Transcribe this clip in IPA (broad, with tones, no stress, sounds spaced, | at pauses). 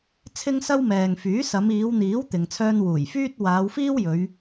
t͡sʰ ɪ˥ ŋ s ɐ˥ w m ɛː˨ ŋ f yː˨˥ s ɐ˨˧ m iː˨˧ w n̪ iː˨˥ w t̪ ɪ˧ ŋ t͡sʰ œː˥ n w uː˨˩ j f yː˥ t̚ w aː˨˧ w f iː˥ w j ɵ˨˧ ɥ